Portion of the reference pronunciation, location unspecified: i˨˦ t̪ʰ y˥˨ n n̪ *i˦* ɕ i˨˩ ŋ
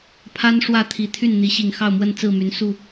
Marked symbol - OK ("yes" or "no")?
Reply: no